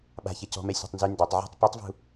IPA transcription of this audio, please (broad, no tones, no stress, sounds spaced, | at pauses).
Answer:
ɓ a̤ ç ɛ c ɔ̤ m ɛ sʲ a̤ tˤ n z y n d œ tˤ ʕ ɔ̤ tˤ p y tˤ v ṳ